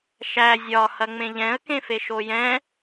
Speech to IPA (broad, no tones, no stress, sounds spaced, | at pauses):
ʃ æ zʲ ɒ h ɐ ŋ͡m ẽ ʎ ɛ̃ ə̯ k ẽ f e ʃ o j ɛ̃